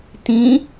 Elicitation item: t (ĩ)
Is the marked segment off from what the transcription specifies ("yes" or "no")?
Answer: no